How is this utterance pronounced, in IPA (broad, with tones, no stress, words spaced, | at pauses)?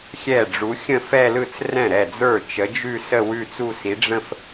xʲɛ˥˩ɖ͡ʐu˨˥ xʲə̃˥˩fɛ˥˧lɯ˥˩t͡s rɛ̃˥˩ɾɛ˥˩ d͡zə˞˥˩t͡ʃə˨˥d͡ʒʉ˥˧sə˥˧ wʉ˥˧t͡su˥˧si˨˥ ɖ͡ʐə̃˥˧f